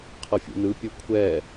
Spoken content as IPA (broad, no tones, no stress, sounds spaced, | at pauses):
qʰ ɤ fʲ ṵ n ɯ pʲ ɤ kʷʰ ɛ